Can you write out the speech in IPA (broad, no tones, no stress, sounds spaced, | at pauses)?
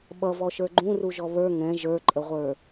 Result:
ɓ ʌ v ɔ ʃ ə˞ ɡ͡ǃ ũ r u ʒ ɔ β ə˞ ŋ ɛ̃ ʒ ə˞ ǃʼ ə ʁʷ ə˞